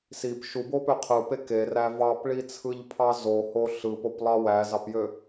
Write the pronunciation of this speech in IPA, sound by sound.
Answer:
sip ʃubopø qʰɯpe keræ vɑpɭit͡sʰɯʎpʰɑ zoho ɬɯpoplˠɑ wæzɑpjø

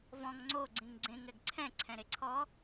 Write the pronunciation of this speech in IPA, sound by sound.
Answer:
vɔ̃ŋ ŋ͡ǀo ɡ͡ǀĩŋɡ͡ǀẽŋ ɛɡǀʰɛ̃ ǀʰɛ̃ɾeǀʰɔ

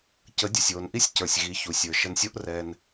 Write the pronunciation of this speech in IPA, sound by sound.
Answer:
cə˨˦dʲə˨sʲwo˨nʔi˦sʲ cə˞˨sʲɣi˨˦çu˨ sʲə˞˨ʃə˧nsʲo˦ʔ rɛ˧n

